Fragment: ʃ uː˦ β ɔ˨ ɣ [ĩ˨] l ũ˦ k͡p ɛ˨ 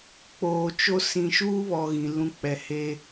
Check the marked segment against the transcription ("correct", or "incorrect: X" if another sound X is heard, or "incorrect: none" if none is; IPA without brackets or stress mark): correct